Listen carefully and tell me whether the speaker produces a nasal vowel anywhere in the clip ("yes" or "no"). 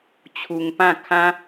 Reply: yes